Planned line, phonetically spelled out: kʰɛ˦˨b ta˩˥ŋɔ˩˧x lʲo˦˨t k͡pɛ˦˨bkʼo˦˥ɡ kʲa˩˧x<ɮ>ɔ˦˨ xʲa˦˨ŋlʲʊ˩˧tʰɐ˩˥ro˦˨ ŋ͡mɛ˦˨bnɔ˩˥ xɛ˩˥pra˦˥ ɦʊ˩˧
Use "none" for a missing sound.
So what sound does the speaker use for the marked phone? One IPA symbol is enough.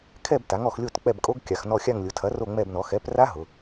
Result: n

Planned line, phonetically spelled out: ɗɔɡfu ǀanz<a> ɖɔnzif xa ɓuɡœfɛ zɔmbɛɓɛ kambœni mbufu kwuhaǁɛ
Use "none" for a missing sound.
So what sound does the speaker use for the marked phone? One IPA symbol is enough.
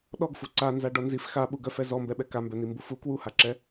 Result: a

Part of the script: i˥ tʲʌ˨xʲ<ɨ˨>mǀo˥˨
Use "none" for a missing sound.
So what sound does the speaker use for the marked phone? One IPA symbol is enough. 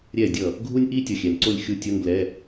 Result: ɛ˨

